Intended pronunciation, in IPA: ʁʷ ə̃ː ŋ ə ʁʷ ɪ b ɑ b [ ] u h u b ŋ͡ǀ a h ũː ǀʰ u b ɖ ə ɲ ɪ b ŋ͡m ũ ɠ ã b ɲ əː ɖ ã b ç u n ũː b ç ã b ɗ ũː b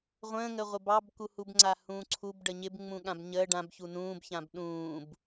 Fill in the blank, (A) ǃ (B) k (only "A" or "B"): B